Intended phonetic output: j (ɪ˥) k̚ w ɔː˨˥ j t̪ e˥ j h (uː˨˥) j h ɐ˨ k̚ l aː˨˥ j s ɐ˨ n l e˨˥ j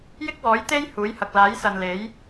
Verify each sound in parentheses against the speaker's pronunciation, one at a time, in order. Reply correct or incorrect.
correct, correct

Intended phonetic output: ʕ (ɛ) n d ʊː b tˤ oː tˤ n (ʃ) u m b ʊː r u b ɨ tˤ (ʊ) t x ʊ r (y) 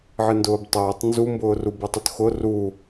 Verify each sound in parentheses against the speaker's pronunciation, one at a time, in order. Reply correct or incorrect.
incorrect: ɨ, incorrect: z, correct, incorrect: u

